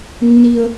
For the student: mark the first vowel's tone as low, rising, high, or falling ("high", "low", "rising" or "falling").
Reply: high